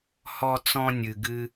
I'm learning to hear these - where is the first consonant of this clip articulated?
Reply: throat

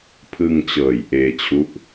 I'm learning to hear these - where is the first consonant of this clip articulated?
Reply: lips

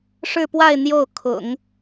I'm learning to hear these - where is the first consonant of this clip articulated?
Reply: retroflex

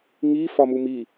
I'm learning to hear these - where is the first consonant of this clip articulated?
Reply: velum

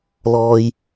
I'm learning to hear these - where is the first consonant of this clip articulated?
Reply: tongue tip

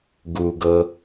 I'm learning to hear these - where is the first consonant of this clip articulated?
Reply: velum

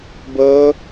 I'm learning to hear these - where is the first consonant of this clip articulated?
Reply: lips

